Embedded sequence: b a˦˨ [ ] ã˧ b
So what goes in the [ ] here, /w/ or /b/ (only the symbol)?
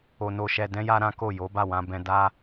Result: w